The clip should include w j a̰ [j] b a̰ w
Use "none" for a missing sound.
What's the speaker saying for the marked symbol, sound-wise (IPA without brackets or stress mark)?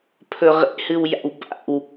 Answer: w